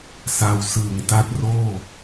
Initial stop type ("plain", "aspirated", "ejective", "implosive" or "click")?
plain